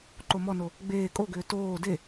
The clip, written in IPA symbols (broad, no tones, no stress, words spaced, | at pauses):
ǃomɔno | ɡ͡beː kʼoɡʏː toː de